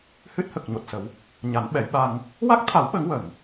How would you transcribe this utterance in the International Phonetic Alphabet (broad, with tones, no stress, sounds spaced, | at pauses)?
h ɨ˦˥ t̚ h ə˨˩ k̚ ɲ o˨˩ t̚ s ə˨˩˦ w | ɲ a˨˩˦ n ɓ ɛ˨˩˦ j ɓ a˧ ŋ | w a˦˥ k̚ t̪ʰ a˨˩˦ w ɓ ə˨˩˦ ŋ w ə˨˩˨ ŋ